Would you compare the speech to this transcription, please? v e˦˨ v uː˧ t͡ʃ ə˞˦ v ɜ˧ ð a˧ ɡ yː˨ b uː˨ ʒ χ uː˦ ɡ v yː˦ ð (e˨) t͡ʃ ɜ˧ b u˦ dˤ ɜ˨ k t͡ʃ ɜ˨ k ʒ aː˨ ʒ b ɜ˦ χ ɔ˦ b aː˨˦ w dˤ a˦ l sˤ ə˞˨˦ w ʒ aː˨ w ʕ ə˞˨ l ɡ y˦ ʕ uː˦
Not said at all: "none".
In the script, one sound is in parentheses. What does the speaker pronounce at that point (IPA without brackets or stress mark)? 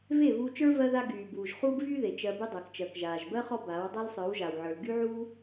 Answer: e˨